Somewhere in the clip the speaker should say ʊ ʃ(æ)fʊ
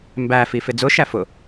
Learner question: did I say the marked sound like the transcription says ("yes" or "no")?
yes